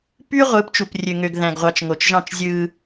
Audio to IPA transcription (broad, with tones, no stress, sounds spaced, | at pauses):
p y˦ ʁʷ ɯ˨˦ p t͡ʃ u˨ p rʲ ø˨ ŋ ø˨ ɡ ð æ̃˨ ɡ ʁʷ ɑ˨ t͡ʃ ŋ o˨ t͡ʃ ʒ ɑ̃˦˨ t͡ʃ zʲ ɯ˦